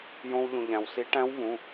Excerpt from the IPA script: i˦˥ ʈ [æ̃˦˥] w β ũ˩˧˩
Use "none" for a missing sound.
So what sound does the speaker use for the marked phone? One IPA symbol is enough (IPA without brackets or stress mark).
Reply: æ̃˦˥